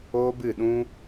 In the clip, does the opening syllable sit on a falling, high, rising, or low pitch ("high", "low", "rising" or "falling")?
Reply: high